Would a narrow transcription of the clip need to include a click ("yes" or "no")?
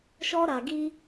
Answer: no